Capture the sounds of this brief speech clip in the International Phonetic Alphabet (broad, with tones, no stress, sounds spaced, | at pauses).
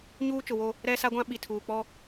ɲ uː˦ t͡ʃ ʊ˨ w o˦ | ɾ ɛ˦ s a˦ ɡʷ ã˦ ɓ i˨ tʰ uː˨ k͡p ɔ˦